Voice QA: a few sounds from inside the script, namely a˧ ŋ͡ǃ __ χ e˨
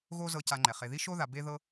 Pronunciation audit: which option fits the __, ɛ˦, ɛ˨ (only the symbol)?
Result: ɛ˨